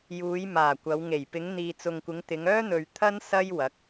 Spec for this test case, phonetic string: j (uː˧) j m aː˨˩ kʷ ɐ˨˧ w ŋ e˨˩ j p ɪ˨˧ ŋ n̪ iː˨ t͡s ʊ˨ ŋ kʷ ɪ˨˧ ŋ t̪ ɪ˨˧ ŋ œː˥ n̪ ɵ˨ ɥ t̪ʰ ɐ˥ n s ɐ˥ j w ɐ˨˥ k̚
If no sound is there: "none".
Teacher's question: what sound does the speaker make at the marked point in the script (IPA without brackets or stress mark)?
uː˨˧